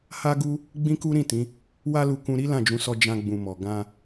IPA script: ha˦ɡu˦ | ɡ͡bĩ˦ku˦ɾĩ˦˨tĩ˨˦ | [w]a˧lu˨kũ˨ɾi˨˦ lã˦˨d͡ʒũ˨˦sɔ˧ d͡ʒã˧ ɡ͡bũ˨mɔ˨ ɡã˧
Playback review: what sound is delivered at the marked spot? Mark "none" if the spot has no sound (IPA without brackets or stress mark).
w